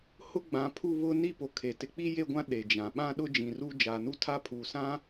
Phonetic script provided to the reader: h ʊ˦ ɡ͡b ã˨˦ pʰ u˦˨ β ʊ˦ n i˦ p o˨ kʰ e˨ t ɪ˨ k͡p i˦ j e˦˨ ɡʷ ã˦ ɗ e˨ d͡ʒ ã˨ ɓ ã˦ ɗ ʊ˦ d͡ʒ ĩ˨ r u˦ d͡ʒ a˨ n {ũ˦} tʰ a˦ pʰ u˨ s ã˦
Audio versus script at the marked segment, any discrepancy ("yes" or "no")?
yes